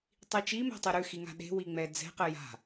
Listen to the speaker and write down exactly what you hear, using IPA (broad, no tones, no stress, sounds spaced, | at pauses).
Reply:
tˤ i t͡ʃ i m ɛ̤ tˤ e ɾ ʉ x i ŋ a̤ ɗ e̤ w i ŋ͡m ɛ d͡z ɛ̤ q ɘ j a̤